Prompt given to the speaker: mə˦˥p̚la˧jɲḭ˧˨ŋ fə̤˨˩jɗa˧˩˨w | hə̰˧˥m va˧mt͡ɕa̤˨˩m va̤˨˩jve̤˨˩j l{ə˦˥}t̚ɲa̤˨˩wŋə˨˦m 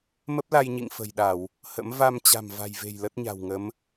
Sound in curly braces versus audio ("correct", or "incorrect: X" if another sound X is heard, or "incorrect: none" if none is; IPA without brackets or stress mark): correct